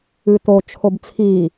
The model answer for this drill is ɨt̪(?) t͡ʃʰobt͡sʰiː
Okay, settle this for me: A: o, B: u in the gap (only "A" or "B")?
A